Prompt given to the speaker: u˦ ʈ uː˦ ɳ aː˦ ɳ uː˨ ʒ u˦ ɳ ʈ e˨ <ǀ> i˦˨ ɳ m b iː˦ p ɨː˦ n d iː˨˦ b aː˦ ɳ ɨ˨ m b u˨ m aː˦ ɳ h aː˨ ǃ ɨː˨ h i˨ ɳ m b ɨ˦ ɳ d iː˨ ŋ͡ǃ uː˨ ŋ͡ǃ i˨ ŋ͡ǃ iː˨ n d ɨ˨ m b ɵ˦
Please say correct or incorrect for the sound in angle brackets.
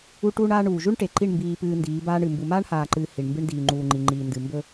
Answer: incorrect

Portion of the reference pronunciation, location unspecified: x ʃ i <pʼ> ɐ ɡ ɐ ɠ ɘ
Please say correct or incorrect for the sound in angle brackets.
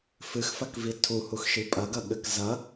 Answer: correct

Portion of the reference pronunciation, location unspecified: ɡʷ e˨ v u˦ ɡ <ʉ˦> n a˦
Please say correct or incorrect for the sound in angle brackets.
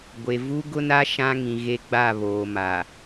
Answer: incorrect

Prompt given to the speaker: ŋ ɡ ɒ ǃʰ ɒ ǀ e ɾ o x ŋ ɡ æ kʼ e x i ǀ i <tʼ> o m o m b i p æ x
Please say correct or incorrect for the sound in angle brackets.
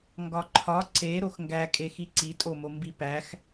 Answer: correct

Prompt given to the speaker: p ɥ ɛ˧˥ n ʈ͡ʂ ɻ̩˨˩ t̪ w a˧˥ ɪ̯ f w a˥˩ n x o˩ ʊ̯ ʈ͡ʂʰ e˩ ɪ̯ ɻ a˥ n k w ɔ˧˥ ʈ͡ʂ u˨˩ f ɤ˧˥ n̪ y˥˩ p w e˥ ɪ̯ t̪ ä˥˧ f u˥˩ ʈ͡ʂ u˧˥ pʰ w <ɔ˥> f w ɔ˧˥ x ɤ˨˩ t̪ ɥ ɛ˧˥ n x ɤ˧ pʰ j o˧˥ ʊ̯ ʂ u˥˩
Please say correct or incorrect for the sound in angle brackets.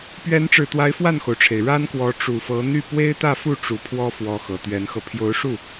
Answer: correct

